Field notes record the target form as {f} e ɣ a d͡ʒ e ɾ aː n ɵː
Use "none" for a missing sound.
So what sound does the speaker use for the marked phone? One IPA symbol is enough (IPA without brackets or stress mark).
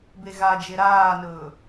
b